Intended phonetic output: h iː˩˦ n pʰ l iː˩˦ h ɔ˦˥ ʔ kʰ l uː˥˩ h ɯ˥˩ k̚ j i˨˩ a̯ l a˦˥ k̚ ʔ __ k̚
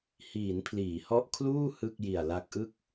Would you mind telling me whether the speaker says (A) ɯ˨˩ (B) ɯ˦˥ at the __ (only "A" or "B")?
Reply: B